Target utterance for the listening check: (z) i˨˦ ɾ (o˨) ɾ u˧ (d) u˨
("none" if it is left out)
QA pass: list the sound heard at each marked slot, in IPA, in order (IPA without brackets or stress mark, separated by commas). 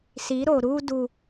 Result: s, o˨, d